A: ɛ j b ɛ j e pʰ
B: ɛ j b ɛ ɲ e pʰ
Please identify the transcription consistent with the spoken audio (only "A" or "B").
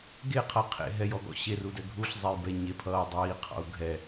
B